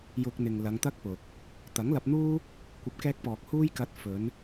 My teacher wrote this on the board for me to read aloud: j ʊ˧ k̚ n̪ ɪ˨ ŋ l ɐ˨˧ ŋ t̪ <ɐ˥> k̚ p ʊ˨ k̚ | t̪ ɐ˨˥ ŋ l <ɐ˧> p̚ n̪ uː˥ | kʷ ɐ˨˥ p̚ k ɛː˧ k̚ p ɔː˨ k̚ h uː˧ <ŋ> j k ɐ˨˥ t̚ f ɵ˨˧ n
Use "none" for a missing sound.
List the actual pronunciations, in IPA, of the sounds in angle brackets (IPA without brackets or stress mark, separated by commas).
ɐ˥, ɐ˧, none